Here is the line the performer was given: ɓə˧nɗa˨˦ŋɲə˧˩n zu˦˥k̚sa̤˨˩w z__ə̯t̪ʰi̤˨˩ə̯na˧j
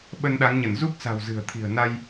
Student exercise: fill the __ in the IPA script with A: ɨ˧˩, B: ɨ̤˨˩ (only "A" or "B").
B